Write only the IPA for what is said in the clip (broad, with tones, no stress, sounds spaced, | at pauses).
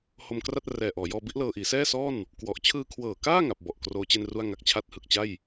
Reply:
h o˧ m k r a˥˩ t̚ r ɛː˨˩ ʔ ɔː˩˦ j ɔː˧ b i˦˥ ʔ l ɤː˧ ʔ iː˩˦ s ɛː˥˩ s ɔː˥˩ n | k w ɔ˨˩ ʔ t͡ɕʰ ɯː˧ kʰ w ɤː˨˩ k aː˥˩ ŋ a˨˩ p̚ b ɔ˨˩ ʔ k r oː˦˥ t͡ɕ e˥˩ n r u˥˩ a̯ ŋ a˦˥ k̚ t͡ɕʰ a˥˩ t̚ h ɯ˨˩ k̚ t͡ɕ a˥˩ j